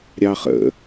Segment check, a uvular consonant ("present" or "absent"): present